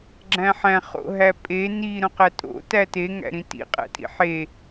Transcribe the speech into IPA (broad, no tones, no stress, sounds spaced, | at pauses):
ɡ͡ǁ æ̃ ħ æ̃ χ o̰ ɦ æ pʼ e n i ɾ õ q æ tʼ o̰ t æ t e ŋ æ̰ ɾ ĩ t ḭ qʼ æ̰ tʼ ḭ ħ e